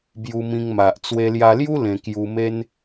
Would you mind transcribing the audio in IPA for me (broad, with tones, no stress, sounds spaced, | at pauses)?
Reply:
b j u˧ m ĩ˧ ŋ m a˨ ʔ t͡s w e˧ l j a˧ l j u˦ l ẽ˧ k j u˧ m e˦ n